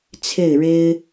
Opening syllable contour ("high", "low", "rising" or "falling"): falling